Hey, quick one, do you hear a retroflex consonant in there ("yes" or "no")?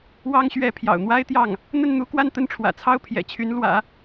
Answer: yes